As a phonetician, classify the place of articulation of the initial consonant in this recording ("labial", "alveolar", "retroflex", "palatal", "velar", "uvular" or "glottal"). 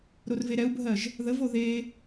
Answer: alveolar